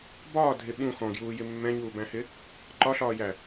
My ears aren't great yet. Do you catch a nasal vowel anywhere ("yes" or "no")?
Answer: yes